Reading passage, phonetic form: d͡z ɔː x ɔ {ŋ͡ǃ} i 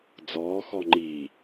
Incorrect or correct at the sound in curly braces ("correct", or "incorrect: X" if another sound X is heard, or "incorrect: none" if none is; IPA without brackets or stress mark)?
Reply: correct